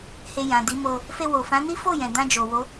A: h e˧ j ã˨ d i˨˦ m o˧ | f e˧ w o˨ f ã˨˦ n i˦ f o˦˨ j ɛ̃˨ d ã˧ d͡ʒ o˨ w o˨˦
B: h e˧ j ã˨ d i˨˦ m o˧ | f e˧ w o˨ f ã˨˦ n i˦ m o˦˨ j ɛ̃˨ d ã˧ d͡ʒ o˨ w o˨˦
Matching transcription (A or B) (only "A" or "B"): A